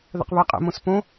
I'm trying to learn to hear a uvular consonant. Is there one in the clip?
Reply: yes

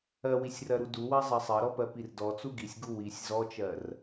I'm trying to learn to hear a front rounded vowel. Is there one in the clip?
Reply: no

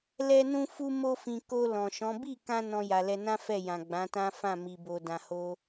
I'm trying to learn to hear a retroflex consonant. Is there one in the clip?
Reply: no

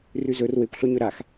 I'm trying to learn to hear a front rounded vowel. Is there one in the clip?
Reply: no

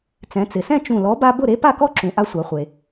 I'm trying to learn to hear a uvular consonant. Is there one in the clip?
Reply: yes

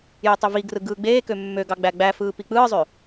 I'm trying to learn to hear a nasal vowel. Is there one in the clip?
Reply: no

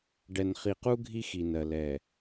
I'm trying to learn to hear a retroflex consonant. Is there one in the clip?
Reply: yes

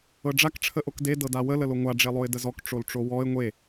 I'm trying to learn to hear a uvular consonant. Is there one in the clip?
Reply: no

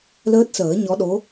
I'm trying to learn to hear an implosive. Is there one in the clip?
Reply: yes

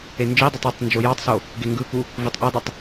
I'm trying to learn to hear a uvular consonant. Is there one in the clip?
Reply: no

